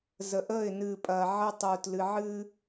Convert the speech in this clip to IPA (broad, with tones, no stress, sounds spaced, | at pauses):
z ə˨ ʔ əː˦˨ ɪ̯ n ɨː˨ pʼ ɐː˨ ʕ ə˦ tˤ uː˨ t l ɨ˨ ʕ ɨː˦